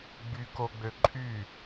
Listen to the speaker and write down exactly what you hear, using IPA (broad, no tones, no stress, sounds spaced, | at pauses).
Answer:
ɡ͡b y k o ɡ͡b ø ǃʼ y